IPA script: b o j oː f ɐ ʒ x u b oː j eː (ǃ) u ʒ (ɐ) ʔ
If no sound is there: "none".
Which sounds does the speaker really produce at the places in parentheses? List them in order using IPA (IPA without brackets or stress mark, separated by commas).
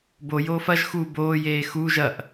x, ɐ